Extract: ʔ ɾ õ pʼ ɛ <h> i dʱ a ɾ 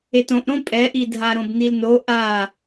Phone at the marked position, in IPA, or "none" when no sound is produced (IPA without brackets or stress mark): ʔ